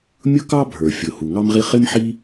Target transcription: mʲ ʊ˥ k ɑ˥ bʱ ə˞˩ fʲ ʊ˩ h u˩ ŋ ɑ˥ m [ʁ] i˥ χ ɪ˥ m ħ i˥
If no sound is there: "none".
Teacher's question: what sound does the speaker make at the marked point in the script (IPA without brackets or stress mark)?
ʁ